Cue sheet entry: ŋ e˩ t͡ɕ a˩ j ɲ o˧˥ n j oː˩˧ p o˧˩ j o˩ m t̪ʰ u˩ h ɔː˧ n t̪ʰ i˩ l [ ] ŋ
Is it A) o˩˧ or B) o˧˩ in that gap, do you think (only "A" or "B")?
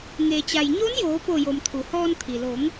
A